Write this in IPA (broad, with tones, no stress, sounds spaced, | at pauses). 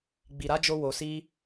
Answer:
ɡ͡b i˨ ɾ a˨˦ d͡ʒ o˧ w o˨ s i˧